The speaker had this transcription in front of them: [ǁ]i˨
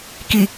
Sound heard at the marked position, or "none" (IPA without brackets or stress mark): k